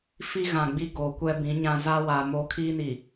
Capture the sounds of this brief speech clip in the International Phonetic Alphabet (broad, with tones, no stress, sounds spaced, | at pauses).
f i˦ ɣ ã˨ ɡ͡b i˦ ɡ o˨˦ kʷ ɛ˦ b ĩ˨˦ ɲ ã˦ z a˦ w a˨ m o˦ kʰ iː˦ n i˨